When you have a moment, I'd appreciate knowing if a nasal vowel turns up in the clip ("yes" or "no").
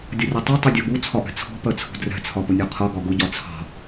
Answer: no